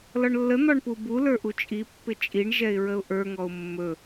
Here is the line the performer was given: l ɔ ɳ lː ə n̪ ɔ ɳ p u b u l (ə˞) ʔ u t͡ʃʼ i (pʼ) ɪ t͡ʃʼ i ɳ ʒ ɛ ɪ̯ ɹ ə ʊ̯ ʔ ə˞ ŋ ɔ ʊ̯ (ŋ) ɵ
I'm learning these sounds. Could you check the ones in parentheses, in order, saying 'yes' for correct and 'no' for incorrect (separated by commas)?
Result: yes, no, no